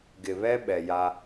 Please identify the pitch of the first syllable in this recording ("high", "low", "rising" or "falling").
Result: low